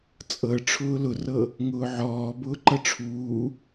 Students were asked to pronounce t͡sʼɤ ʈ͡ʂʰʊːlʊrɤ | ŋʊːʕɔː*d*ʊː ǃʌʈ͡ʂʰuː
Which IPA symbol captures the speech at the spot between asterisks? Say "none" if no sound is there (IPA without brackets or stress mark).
b